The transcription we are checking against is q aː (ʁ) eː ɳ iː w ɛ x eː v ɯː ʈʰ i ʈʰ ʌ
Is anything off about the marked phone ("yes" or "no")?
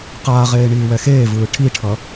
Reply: no